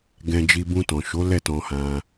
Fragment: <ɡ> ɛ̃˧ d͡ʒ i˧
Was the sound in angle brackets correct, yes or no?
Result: yes